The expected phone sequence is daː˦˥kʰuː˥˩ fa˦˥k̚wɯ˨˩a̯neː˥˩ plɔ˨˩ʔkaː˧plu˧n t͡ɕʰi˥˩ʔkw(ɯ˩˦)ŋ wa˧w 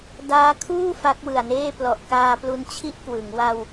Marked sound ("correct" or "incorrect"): correct